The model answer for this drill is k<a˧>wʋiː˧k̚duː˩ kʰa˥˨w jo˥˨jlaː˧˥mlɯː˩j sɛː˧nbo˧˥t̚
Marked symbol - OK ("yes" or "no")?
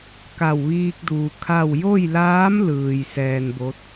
no